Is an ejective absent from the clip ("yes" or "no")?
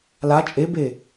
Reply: no